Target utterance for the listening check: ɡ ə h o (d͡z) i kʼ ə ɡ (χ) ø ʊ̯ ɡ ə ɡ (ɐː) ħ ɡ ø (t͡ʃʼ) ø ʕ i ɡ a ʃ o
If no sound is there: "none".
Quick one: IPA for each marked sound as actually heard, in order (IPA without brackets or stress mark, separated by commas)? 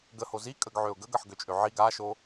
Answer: z, ʕ, ɐ, t͡ʃʼ